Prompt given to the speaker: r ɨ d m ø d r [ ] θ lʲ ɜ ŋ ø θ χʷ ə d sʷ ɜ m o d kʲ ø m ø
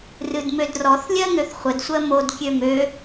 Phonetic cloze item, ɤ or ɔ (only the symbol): ɔ